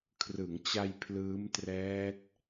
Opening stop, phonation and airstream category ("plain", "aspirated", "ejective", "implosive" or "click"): aspirated